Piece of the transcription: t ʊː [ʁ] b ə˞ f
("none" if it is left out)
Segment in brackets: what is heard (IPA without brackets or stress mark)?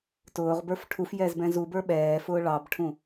ʁ